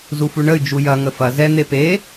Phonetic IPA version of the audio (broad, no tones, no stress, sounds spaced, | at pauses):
z u f u ɳ ə y̯ d͡ʒ u j ɐ ŋ ə f ɐ z ɛ n̪ e p e